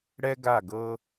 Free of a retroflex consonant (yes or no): no